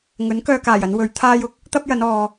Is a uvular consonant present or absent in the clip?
absent